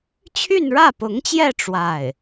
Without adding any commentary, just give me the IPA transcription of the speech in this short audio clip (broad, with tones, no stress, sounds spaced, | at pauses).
t͡ɕʰ y˥˧ n ɻ ä˥˩ p ʊ˧˥ ŋ t͡ɕ j ɛ˥˧ ʈ͡ʂ w a˥˩ ɪ̯